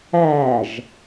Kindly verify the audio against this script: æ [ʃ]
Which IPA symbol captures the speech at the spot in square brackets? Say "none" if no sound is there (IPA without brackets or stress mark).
ʒ